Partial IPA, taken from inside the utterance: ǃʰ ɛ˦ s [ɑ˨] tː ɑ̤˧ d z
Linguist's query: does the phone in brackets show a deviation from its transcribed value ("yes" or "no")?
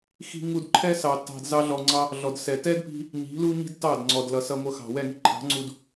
no